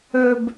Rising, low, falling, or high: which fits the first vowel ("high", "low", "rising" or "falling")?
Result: high